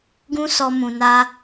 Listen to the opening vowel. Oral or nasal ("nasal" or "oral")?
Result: nasal